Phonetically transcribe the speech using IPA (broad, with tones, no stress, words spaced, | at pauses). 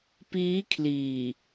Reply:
piː˦˥kʰliː˨˩